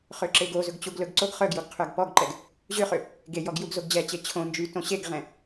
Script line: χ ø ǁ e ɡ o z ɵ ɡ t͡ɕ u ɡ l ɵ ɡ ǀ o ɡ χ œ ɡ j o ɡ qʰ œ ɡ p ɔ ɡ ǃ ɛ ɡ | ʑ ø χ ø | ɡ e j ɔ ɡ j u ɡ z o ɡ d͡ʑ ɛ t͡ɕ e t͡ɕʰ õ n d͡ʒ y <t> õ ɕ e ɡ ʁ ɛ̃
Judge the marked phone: correct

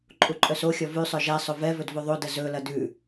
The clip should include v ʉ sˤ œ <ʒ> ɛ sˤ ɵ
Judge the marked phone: correct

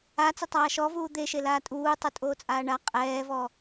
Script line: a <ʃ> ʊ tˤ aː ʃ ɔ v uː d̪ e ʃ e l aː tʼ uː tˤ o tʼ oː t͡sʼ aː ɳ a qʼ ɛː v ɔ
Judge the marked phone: incorrect: t͡s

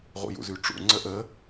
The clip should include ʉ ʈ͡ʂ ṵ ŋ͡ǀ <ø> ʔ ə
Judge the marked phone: incorrect: ə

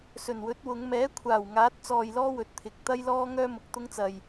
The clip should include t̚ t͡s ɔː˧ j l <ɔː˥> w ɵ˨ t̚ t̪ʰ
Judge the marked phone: correct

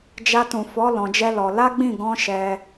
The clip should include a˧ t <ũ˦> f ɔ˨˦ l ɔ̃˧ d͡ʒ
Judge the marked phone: incorrect: ũ˨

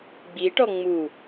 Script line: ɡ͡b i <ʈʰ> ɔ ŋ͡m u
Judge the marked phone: incorrect: ʈ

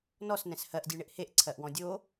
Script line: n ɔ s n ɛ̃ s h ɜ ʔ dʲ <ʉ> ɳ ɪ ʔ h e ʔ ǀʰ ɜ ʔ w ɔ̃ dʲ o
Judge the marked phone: correct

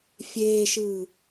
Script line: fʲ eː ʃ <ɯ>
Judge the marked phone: incorrect: ɯː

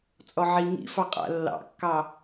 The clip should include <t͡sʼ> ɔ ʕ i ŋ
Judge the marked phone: correct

